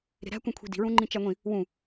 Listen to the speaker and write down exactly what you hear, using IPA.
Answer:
ɾe̤ɾæ̤ kʷĩkʷʰi̤di̤ ɹũŋ͡ǃĩt͡ʃæŋʷĩ | wũ

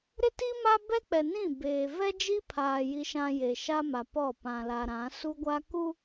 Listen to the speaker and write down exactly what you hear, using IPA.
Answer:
ɾɪ˦ti˦ma˦ bɛ˦k͡pɛ˨nĩ˦˨ beː˨ vɛ˦d͡ʒi˦pʰaː˨ ji˨ʃã˨ je˨ʃa˦ma˨pɔ˦˨ pã˨la˨ɾã˨˦ su˦ɡʷa˦ ku˦

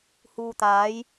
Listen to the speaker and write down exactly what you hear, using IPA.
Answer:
huː˨t̪aː˨˥j

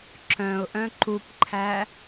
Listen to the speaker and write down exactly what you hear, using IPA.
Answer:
ǁœ̃ʊ̯ʔœ̃ ǃupǃʰæ

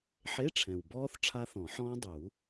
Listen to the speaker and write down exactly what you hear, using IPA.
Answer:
ħe˧˥˧ʈ͡ʂʰɛ̃˨˩wbɔː˦˥θ ʈ͡ʂʰa˦˥θɔ̃˨˩˦ħɔ̃ː˦˥ dˤu˨˩˦

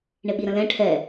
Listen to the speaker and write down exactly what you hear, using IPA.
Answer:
ɳɪɓiɾə̃lɛ̃ ʈʰɛ

